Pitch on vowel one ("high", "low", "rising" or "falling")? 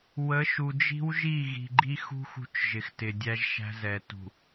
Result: rising